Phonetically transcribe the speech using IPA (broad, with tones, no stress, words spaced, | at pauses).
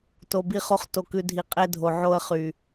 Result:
to˨bi˧χo˧χ to˨kʉ˨dʱi˨ qʼe˧dʱo˨ʕo˧ə̯ χy˨